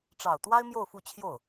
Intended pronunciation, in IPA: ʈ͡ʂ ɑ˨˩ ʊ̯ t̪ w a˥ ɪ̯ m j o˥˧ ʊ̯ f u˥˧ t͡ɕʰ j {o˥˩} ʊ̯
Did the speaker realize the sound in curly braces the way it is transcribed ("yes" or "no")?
yes